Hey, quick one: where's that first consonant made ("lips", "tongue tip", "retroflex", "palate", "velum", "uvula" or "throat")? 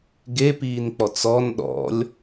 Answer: velum